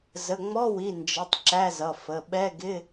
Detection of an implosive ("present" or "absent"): present